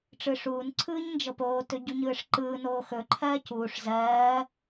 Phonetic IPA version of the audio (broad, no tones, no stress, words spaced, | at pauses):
ʈ͡ʂɯʂuːn ǀʰɯːɲnd͡ʒɤpoː tɵɟuɲɯːʂǃɯː noːxɵ ǃʰɜːcuːʂ zɜː